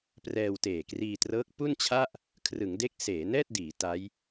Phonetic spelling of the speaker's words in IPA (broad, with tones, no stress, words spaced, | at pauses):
prɛː˧wteː˨˩kriː˧trɤː˦˥k̚ pu˥˩nt͡ɕʰa˥˩ʔ | kʰrɯ˩˦ŋde˦˥k̚ seː˩˦nɛː˥˩t̚diː˩˦ ta˦˥j